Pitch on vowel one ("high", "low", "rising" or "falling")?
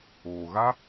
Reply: low